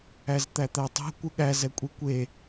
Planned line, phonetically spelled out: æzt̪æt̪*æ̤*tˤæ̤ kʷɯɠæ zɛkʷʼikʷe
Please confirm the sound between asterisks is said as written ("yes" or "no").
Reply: no